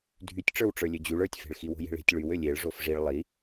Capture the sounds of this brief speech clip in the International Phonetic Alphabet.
dʱ y tʲ ʈ͡ʂ ə˞ w ʈ͡ʂ ə˞ lʲ ø d͡ʑ y ɭ ə˞ tʲ f e̤ ɭ x i w o̤ j e̤ ɭ e̤ tʲ ɭ y w ø lʲ e ɭ ʐ o f ʐ i ɭ lˠ i

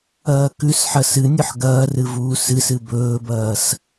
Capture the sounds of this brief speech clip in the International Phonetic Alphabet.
ɐː k ʉ s ħ ɐ s ɨ nʲ ɵ ħ ɡ ɐː r ɨ v uː s ɨ s ɨ b ɵː b ɐː s

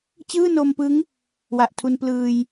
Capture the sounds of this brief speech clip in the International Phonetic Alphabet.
t͡ɕ ɯː˥˩ n o˧ m p ɯ˦˥ ŋ | w a˨˩ ʔ tʰ u˧ n p l ɯː˧ j

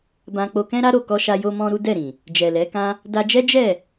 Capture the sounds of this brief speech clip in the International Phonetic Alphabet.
b ã˧ k͡p o˧ k ɛ̃˦ ɾ a˦ ɾ o˦˨ k ɔ˧ ʃ a˧ j o˦ m ɔ̃˦ ɾ u˦ d ɛ˦˨ ɾ ĩ˨ | d͡ʒ ɛ˨ l ɛ˨˦ k ã˦ | d a˧ d͡ʒ ɛ˦ d͡ʒ ɛ˦˨

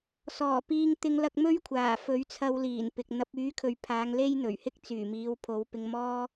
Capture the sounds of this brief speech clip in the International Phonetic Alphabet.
s ɔː˨˩ p iː˧ ŋ t̪ ɪ˧ ŋ l ɐ˧ k̚ m ɵ˥ ɥ kʷʰ aː˨˩ f ɵ˨˥ ɥ t͡sʰ ɐ˧ w l iː˨˩ n p ɪ˨ k̚ n̪ ɐ˨˥ p̚ yː˨˥ kʰ ɵ˨ ɥ pʰ aː˨˧ ŋ l e˥ j n̪ ɵ˨˩ ɥ h ɪ˥ k̚ t͡s yː˨˩ m iː˨˧ w pʰ o˨˧ w p ɪ˧ ŋ m ɔː˥

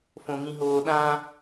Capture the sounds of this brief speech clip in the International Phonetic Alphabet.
f õ ŋ ĩ ɦ oː ɗ ã

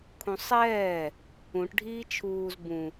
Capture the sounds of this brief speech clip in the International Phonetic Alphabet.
kʰ ũ sˤ ɛː | ũ ʈ ɖʱ iː t͡ʃʰ uː z b ũ

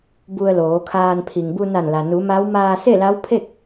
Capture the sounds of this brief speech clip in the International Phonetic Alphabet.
b u˧ ə̯ l oː˩˧ kʰ aː˧ n pʰ i˩ ŋ b u˧ n a˧˩ n l a˩ n u˩˧ m a˧˥ w m aː˧ s e˥˨ l a˧˥ w pʰ e˥˨ k̚

